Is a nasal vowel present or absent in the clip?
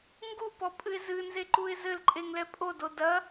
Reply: absent